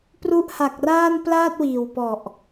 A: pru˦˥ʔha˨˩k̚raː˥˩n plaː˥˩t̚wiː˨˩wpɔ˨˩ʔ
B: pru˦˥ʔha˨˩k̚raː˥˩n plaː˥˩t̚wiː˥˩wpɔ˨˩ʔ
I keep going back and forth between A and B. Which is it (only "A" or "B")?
A